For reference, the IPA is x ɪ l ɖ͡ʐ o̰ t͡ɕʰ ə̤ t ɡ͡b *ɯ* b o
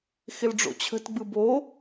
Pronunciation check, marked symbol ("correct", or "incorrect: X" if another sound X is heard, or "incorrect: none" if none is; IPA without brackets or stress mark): correct